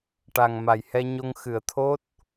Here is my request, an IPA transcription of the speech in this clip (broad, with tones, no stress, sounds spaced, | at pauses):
ʈ a˨˩ ŋ m a˨˩ j h ɛ˧ ɲ o˧ ŋ x ɨ˨˩˨ ə̯ t̪ʰ o˦˥ t̚